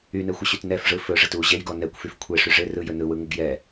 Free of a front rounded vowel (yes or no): no